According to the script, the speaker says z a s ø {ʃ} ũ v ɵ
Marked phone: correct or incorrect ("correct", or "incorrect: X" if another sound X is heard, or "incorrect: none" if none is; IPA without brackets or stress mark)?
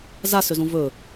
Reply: incorrect: z